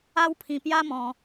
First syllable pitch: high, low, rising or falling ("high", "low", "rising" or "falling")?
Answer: high